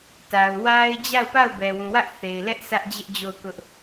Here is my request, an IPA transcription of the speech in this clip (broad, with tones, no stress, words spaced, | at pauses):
ta˨ʊ̯ wa˦ɪ̯ d͡ʑa˦˨ʊ̯pa˦˨ʊ̯ bɛ˨wũ˨wä˦ʔ θe˨ɪ̯lɛ˦ʔ sä˦ʔd͡ʑɪ˦ʔ d͡ʑo˦˨ʊ̯kʊ˦ʔ